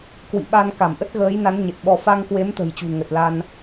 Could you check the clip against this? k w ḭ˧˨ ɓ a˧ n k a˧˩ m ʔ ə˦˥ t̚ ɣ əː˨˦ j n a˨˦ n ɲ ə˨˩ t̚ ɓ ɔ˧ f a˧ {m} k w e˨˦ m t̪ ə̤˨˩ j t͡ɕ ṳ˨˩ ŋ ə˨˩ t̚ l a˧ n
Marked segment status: incorrect: ŋ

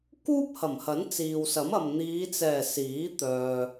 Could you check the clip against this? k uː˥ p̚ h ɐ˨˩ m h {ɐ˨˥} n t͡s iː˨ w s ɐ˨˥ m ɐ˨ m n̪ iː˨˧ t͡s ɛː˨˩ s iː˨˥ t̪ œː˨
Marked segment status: correct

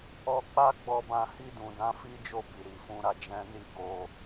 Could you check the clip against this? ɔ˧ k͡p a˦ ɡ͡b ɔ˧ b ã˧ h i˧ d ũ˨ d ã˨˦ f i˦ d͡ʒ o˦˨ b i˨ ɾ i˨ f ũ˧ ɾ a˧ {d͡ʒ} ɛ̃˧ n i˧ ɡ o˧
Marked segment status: correct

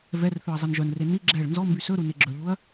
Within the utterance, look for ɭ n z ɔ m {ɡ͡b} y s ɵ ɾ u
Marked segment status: incorrect: b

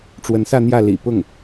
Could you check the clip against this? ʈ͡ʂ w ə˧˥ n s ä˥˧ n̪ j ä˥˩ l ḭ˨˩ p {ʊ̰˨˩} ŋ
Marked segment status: incorrect: ʊ˥˩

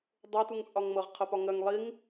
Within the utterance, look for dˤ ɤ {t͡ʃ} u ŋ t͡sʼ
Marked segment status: incorrect: t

